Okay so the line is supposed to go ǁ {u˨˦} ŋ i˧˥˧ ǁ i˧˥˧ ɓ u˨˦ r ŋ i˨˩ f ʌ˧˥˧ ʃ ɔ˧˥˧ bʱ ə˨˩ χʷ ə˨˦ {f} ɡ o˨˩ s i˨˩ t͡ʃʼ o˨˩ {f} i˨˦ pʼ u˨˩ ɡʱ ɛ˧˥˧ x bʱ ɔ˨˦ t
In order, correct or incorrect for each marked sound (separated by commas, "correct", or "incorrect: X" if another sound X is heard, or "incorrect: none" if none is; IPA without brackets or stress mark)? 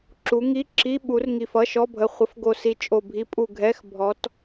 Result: correct, correct, incorrect: bʱ